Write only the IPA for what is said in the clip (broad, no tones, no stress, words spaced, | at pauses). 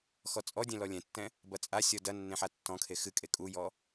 xɔt͡sʼɔdʲɛ̃ lɔlʲɛ̃tːɛ̃ | bɐt͡sʼasʲɔ dɐ nːẽħatːɔ̃kʰe xɨkʼe kʼujɔ